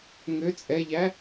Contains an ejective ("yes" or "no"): yes